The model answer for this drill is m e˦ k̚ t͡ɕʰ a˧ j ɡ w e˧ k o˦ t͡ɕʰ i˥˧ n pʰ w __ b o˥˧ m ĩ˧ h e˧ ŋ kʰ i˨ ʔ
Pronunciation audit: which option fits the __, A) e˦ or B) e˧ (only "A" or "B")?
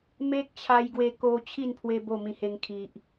B